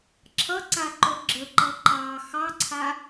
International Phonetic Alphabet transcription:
ǁʰ ʌ ǀ a ǃ o ɡ͡ǁ ə ǃ ʌ ǃ ɑ x ɑ ǀʰ a

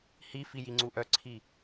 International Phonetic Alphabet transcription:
h i f i j i ŋ͡ǀ u ʔ œ ǀʰ i

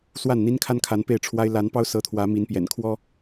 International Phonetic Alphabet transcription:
s w a˥˨ n n̪ i˦ n kʰ a˦ n kʰ a˨˦ n p e˥˨ ɪ̯ ʈ͡ʂʰ w a˦ ɪ̯ l a˨˦ n p ɑ˦ ʊ̯ s ɤ˨˦ t̪ʰ w ä˨˦ m i˨˦ n p j ɛ̰˨˩ n kʰ w ɔ˦

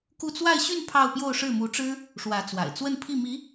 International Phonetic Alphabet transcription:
k u˥˧ t͡s w a˥˧ ɪ̯ ɕ y˥˧ n pʰ ɑ˥˧ ʊ̯ p j o˥˧ ʊ̯ ʂ ɻ̩˥˩ m u˧˥ ʈ͡ʂ ɻ̩˥ | ʂ w ä˧˥ t͡s w a̰˨˩ ɪ̯ t͡s w ə˥˧ n pʰ i˥˩ m i˧˥

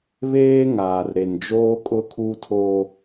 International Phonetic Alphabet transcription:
β eː˦ ŋ aː˨ r ɾ e˨ n d͡ʒ oː˦ kʼ ʊ˦ kʰ u˦ tʰ o˦

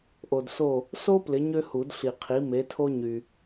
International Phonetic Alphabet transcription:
ʔ o˨ d s o˦˨ | s o˥ p l ɪ˨˥ ɲ ø˥ h u˨˩˦ d ɬ i˨ qʰ i˨˥ m e˨˥ tʰ o˥ ɲ y˨

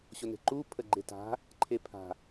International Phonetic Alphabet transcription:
ɕ o n e̤ ǃ u pʰ ə ɡ͡ǃ e t a̤ | ǃʰ e pʰ a̤

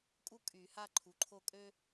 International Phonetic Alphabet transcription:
kʼ u˥ kʼ y˨˩˦ h a˥˧ ǃʰ u˩˥ ǃʰ o˥˧ kʼ ø˥

